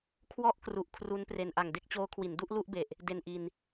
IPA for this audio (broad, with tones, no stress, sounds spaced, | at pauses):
kʰ w ɔ˥˩ ʔ k r u˨˩ ʔ kʰ r u˦˥ n p r e˧ n ʔ a˨˩ ŋ d e˥˩ k̚ t͡ɕ oː˦˥ kʰ w i˩˦ n d u˥˩ ʔ l u˥˩ ʔ b e˨˩ ʔ | d e˧ n ʔ i˧ n